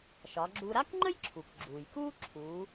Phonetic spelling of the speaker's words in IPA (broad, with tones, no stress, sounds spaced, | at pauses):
ʃ ɒ˩˧ ɡ͡ǁ u˧ ɾ a˥ k ŋ͡ǃ ə˥ j ǁʰ u˩ k ɡ͡ǁ uː˩ j k uː˥ ǁʰ uː˩˧